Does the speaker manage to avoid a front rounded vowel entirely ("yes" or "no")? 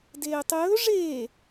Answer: yes